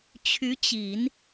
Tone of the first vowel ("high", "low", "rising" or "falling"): rising